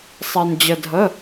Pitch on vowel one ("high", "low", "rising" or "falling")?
low